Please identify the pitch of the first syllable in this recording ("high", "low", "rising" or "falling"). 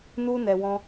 high